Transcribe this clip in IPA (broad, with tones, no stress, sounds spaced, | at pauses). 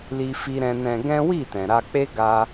l i˦ f i˦ ɾ ɛ̃˦ n ɛ̃˧ ɡ ɛ̃˦ w i˦˨ t ɛ̃˨ ɾ a˧ k͡p e˦ ɡ a˦